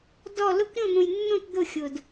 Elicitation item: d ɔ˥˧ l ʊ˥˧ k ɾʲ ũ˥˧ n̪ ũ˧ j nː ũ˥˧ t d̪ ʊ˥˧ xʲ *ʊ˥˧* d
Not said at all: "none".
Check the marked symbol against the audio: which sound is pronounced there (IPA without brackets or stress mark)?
ʊ˧